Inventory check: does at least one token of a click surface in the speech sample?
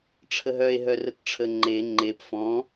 yes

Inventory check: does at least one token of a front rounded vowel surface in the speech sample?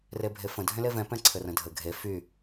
yes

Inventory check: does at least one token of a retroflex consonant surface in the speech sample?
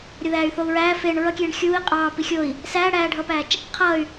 yes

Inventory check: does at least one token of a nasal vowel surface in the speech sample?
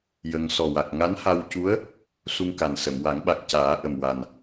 no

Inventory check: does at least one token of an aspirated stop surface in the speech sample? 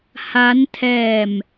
yes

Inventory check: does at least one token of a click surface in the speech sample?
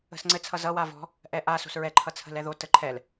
yes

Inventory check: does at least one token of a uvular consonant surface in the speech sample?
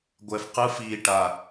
yes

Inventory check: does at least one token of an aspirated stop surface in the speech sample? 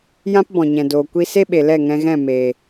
no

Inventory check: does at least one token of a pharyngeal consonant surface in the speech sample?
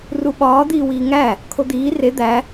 no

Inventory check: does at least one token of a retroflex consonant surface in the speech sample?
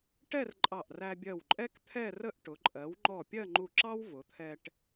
yes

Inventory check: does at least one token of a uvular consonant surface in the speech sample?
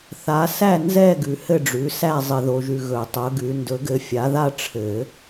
no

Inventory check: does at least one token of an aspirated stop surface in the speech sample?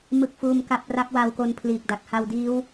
yes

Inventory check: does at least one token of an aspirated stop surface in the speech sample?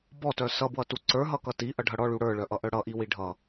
no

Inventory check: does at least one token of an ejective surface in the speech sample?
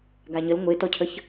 no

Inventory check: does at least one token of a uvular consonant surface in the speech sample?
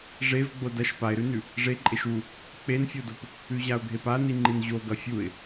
no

